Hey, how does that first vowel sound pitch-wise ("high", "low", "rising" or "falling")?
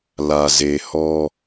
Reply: low